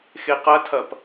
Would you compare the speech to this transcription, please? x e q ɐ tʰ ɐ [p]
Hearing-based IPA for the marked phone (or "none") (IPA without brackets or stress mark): p